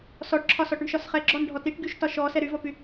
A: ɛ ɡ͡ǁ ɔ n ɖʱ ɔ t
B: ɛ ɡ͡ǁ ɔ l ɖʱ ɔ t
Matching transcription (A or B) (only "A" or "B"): A